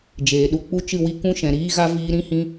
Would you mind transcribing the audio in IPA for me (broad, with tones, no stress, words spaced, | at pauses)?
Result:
d͡ʒeː˨ɗu˧ k͡pu˧ t͡ʃɨ˦˨wi˧ kũ˦ʃɛ̃˨ɾiː˦ɣa˦ viː˧ɾĩ˦hĩ˧